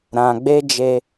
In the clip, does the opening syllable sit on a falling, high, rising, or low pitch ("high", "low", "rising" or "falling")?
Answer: low